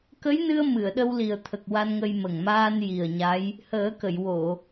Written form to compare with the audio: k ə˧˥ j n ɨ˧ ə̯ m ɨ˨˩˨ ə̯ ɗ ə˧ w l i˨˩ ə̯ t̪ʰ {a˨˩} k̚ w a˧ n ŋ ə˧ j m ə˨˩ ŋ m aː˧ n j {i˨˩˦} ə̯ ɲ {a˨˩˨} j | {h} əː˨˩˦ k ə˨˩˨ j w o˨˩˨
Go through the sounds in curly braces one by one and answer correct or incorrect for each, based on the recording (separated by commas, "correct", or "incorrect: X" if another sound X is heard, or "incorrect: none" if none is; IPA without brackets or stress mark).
incorrect: ə˨˩, incorrect: i˨˩, incorrect: a˧˥, correct